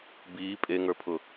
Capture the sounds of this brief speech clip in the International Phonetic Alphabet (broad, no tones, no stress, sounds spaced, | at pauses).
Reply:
b iː pʼ e ŋ ə˞ pʰ ʊ